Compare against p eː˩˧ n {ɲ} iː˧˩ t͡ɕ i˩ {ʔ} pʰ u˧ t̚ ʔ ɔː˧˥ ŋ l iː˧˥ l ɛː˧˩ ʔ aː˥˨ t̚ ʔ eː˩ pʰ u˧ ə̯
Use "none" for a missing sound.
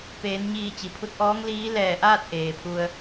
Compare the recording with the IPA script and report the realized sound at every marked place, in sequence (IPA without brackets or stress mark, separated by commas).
ɲ, none